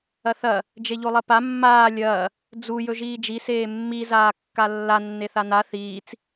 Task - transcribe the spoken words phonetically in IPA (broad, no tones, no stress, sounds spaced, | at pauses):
ɐ θ ɐ | d͡ʒ e ʎ o lˠ ɐ p a mː aː lʲ ɐː | d͡z u j ɵ ʒ iː d͡ʒ i s eː mː i z aː kː a lː a nː e θ a n a θ iː t͡s